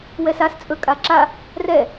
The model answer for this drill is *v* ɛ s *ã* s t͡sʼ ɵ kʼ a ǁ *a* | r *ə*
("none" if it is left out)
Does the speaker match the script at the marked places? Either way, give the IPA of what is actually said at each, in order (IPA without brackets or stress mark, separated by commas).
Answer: w, a, a, ɛ